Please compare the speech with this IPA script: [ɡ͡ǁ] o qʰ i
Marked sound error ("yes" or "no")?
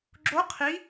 no